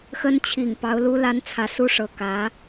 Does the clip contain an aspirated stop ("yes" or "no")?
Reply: yes